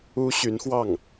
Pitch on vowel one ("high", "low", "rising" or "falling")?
high